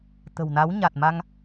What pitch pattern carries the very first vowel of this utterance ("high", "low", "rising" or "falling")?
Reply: low